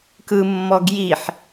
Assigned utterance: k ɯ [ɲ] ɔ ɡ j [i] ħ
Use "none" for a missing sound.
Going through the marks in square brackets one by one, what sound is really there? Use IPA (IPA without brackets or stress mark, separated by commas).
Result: mː, i